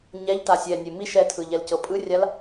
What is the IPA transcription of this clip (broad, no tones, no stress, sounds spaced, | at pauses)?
ɲ ɛ ʎ t a sʲ ɛ nʲ e m i ʃ ɛ tʰ ɯ ʎ ɛ l c ɤ pʼ ɯ rʲ a l